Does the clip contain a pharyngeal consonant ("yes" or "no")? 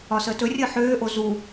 yes